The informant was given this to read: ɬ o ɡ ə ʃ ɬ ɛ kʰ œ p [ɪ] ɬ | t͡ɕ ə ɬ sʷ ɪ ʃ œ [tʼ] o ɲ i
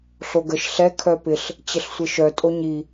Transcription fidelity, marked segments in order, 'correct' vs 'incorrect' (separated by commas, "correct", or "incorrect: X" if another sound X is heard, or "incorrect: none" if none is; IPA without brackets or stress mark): correct, correct